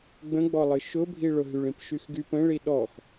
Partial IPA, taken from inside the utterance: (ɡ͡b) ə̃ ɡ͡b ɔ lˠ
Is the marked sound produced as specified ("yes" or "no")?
yes